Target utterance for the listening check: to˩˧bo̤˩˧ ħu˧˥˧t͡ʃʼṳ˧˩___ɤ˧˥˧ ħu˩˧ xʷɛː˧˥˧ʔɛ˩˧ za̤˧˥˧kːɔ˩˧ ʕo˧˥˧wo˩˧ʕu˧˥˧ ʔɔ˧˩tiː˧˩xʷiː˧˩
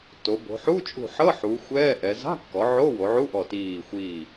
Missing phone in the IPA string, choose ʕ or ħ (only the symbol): ħ